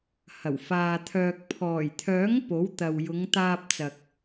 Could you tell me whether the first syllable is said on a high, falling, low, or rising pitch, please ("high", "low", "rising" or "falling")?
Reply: low